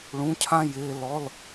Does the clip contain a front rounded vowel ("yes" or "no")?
no